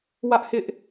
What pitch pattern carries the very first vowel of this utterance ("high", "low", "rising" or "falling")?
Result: high